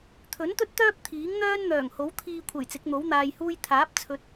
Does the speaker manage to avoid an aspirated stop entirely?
no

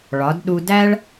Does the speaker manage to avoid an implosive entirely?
no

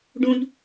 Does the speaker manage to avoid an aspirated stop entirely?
yes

